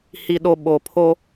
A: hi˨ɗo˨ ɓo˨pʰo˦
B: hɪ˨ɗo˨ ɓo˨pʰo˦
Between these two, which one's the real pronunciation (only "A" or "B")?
A